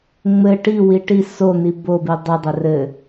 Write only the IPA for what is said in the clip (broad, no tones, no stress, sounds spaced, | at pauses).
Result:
ŋ͡m ɘ ʈ i w i ʈ i s o n̪ i b o b i dˤ ɘ dˤ ɘ r ɘ